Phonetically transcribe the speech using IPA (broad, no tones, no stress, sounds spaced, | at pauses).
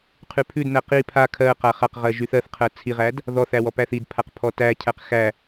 qʰ ʉ pʰ ʉ d n æ q i pʰ a kʰ ɜ q a χ a q ʁ ɜ ʒ y θ ɜ θ qʰ ɜ t͡sʰ i ʁ æ d | ð ɔ θ æ w ɔ p æ θ i d pʰ a q pʰ ɔ t æ cʰ æ q x æ